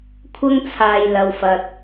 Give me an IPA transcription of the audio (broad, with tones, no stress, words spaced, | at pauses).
kʷʰɐ˥ŋt͡sʰaː˨j lɐ˨wfɐ˨t̚